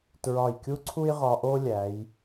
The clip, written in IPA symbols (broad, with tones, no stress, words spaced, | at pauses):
tɹɒ˧˩jkʲu˥ǀʰu˥j ʁɒ˧ʔo˥ lʲæ˩˧j